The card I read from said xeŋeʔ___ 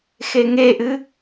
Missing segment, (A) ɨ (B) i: A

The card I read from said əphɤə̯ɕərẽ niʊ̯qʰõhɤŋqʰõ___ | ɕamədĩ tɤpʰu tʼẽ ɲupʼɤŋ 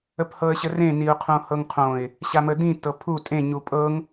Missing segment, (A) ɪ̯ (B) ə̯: A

